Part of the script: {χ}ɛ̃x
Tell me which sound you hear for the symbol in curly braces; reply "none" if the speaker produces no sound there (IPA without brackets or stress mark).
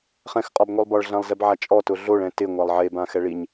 χ